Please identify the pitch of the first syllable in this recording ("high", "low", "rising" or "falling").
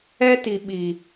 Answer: high